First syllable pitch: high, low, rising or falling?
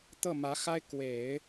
falling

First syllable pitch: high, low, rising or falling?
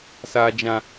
low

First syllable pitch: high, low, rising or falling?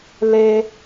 low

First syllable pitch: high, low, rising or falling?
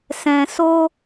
low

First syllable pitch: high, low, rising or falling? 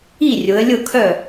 falling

